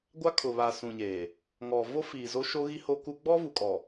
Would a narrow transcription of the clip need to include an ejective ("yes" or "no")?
yes